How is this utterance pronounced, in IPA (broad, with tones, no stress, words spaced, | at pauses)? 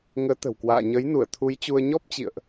ŋəː˨˦t̪ə̤˨˩wkwa̰ː˧˨ ɲə˨˦jnu˧˩ə̯t̪ʰu˨˦jt͡ɕu˧ə̯ ɲɔ˦˥p̚t͡ɕḭ˧˨ə̯ʔ